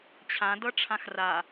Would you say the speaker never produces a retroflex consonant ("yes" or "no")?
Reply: no